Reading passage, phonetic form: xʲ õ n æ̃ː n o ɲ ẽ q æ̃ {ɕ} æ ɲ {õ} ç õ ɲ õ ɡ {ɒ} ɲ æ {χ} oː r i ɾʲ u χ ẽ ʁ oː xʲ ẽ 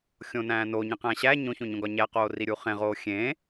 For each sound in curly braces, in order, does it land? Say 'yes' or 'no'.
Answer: yes, yes, yes, no

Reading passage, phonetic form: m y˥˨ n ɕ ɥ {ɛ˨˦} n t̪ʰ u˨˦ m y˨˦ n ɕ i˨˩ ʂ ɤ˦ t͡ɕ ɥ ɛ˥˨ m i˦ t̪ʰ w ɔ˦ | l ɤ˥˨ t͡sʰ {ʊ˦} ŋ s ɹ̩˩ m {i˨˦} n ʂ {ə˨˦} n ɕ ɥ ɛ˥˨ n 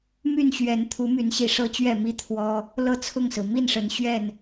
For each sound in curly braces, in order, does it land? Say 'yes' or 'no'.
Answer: yes, no, no, yes

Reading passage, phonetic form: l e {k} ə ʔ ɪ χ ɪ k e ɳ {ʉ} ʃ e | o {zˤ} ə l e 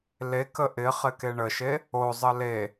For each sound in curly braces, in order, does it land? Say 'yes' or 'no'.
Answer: yes, no, yes

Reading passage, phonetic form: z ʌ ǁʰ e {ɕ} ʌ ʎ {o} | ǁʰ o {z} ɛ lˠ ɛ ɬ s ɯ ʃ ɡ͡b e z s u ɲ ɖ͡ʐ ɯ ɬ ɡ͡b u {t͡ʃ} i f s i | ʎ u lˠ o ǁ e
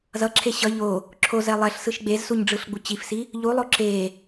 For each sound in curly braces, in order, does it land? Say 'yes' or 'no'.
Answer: yes, yes, yes, no

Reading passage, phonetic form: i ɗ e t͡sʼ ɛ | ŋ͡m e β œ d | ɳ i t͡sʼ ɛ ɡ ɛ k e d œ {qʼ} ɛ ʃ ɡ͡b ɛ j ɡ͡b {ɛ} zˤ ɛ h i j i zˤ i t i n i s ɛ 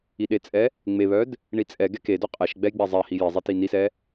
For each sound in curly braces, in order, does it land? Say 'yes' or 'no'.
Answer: yes, yes

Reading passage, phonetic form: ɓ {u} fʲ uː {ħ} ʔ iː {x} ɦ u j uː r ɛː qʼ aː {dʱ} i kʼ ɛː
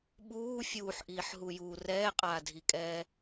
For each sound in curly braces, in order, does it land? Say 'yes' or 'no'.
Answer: no, yes, no, yes

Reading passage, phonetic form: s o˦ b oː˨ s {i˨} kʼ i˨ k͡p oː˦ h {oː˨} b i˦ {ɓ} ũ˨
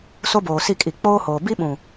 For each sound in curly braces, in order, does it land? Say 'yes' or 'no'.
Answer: no, yes, yes

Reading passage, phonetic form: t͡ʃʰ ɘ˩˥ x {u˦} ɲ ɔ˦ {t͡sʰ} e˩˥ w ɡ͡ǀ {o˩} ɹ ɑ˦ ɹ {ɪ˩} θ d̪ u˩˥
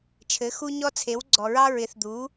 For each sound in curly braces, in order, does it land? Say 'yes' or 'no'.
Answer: yes, yes, no, no

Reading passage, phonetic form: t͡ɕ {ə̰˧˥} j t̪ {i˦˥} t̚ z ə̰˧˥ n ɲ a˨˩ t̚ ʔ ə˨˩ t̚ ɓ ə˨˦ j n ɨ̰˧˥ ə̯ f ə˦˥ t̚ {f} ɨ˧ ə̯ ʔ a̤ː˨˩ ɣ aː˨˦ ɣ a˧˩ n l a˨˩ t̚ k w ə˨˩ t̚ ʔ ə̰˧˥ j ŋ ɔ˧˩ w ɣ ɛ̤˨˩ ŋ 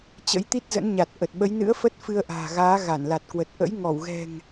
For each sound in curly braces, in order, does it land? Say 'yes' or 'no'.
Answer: yes, yes, yes

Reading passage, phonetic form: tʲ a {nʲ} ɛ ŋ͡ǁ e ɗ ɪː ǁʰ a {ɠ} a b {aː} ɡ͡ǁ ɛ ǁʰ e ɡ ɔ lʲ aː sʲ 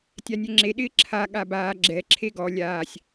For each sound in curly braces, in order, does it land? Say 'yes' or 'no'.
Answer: yes, yes, yes

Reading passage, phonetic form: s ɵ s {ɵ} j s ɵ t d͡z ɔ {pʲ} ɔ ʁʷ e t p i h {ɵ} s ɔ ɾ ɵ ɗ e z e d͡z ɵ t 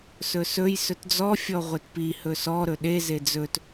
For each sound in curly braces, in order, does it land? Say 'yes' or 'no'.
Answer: yes, no, yes

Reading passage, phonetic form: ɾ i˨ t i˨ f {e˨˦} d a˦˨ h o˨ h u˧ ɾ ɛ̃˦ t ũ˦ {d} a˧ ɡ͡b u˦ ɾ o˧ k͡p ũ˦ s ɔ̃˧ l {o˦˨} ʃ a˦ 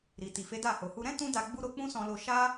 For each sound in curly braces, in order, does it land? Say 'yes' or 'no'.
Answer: yes, yes, no

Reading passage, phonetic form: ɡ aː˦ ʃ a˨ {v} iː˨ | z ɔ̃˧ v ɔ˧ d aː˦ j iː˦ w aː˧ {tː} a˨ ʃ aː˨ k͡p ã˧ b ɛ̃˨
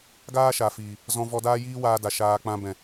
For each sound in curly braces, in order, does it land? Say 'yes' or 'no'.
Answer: no, no

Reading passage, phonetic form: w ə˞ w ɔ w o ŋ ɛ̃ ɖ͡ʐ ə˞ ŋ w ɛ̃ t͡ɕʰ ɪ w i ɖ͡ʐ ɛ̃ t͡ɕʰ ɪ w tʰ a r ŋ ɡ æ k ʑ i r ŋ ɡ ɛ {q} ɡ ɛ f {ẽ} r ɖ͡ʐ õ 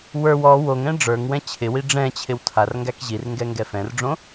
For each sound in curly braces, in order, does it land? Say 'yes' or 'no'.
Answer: no, no

